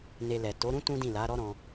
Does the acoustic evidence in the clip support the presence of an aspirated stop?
no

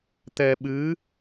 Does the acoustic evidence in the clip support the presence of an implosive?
yes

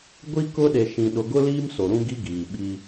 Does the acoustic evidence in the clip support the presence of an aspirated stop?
no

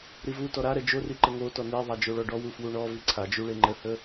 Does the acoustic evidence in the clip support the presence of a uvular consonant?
no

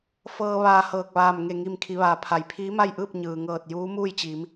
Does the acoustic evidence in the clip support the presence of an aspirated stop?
yes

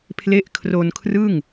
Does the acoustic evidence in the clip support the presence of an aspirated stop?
yes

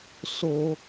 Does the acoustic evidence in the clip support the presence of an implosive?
no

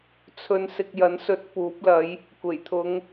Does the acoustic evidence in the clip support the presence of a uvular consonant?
no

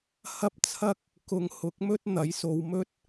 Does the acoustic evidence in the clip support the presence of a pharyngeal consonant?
no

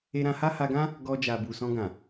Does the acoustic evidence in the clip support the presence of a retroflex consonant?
no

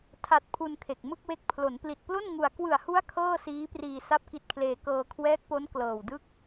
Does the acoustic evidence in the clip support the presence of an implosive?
no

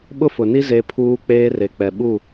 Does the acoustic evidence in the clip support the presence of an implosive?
yes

